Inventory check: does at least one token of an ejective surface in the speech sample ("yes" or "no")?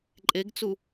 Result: yes